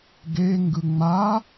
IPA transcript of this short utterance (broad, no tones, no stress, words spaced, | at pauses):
ɡe ŋɡɯŋ͡ma